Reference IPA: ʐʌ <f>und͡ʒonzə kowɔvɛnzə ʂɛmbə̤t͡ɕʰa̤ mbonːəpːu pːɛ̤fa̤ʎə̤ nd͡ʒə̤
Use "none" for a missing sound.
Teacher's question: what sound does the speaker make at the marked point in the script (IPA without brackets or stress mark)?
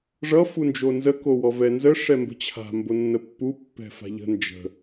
f